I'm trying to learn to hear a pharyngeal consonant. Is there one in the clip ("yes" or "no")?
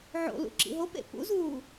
yes